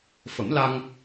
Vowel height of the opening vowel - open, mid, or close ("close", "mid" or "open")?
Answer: mid